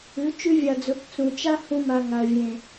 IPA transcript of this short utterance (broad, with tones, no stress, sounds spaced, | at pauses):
ʉ˨˦ t͡ʃ ʉ˦ vʲ a˨ d͡z ɵ˨˦ p t͡s ũ˨ t͡ʃ a˦ h ũ˧ m a˨ ŋ a˨ ə̯ vʲ ẽ˨